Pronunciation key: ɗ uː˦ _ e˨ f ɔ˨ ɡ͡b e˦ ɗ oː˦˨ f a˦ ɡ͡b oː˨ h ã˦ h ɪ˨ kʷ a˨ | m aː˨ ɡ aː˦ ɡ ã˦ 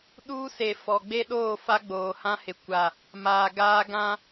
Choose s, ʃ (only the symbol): s